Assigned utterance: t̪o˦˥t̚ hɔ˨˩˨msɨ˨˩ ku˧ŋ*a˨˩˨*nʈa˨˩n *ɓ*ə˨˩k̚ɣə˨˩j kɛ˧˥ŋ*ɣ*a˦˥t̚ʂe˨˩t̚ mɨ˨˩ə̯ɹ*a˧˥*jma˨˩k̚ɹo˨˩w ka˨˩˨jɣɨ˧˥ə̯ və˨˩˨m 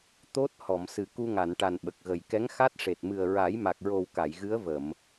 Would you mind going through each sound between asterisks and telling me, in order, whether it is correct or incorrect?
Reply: correct, correct, incorrect: x, incorrect: a˨˩˦

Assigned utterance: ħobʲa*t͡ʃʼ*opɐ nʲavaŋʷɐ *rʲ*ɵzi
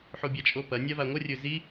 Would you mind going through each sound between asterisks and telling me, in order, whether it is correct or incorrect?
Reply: correct, correct

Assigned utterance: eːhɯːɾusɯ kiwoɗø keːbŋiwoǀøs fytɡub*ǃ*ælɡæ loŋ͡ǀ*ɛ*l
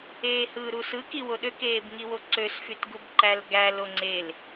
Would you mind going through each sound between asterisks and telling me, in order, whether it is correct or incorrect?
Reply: correct, incorrect: e

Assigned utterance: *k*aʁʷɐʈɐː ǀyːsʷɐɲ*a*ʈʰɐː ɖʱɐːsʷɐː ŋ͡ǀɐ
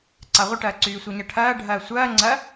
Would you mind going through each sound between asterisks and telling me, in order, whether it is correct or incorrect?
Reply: incorrect: ǀ, incorrect: ɐ

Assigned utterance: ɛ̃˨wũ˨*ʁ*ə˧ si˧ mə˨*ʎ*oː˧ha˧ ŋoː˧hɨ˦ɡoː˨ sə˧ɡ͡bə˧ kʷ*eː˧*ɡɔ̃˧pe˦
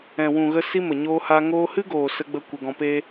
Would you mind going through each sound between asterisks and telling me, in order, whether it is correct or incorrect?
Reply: incorrect: ɣ, incorrect: ɲ, incorrect: e˧

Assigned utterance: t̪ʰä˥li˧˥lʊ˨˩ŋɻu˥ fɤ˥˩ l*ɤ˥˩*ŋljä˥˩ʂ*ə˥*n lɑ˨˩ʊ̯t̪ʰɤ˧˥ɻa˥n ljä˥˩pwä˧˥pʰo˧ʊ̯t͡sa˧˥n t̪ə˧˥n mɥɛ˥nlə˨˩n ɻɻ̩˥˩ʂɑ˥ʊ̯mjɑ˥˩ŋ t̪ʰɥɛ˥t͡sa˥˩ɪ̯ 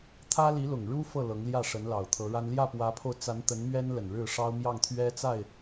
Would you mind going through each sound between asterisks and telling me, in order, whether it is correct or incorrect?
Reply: incorrect: ɤ˧˥, incorrect: ə˧˥

